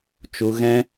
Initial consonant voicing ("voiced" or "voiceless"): voiceless